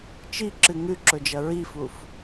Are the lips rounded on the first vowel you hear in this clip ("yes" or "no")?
no